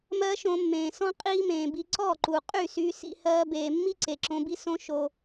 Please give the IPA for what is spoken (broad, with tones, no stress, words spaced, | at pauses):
mɜ˦ʃõ˧mːẽː˨ sɔ̃˦ qʼiː˦mẽː˨bi˧ ǀɔ˦˨ǃu˨ qʼy˦˨syː˧ sḭ˦ hɜː˧beː˨mːi˦ ǀe˨ǁõ˧bi˦sõ˦ ʃo˧